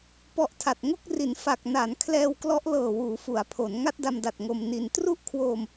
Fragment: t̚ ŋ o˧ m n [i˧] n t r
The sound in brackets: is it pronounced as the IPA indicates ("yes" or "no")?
yes